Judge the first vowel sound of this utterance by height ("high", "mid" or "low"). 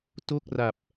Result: mid